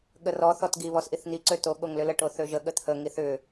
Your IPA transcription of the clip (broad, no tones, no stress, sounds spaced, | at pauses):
ɠ ə r ɔ θ ɔ t ɡ i β ɔ s ʔ i θ n̪ i ǀ ø t o ɠ o ŋ l ʏ l ə ʈ o θ ø ʒ ə ɠ ə t̪ʰ ə ŋ i θ ʏ